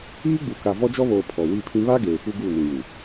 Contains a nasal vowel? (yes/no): yes